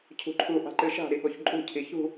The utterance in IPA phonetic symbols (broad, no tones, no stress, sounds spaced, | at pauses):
cʰ ṳ ǃʰ u ʔ a̤ ǃ ɨ ʃ a̤ ɾ i ɠ o ç ǃʼ ṳ cʰ i ç ṳ